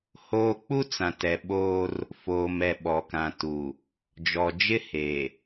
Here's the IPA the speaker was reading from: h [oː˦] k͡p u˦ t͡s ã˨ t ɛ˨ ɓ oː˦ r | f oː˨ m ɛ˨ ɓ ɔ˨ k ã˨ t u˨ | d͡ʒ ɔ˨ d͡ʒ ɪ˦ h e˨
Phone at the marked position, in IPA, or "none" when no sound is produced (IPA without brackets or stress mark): oː˦